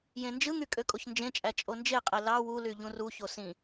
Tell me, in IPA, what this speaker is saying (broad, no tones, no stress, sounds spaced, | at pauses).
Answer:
j ẽ n d͡ʒ ɯ ŋ y kʼ ø kʼ o ç n d͡ʒ ẽ t͡ʃʼ æ t͡ʃʼ o n d͡ʒ e qʼ e l ɑ w u l y ʎ ũ r u ç o s ĩ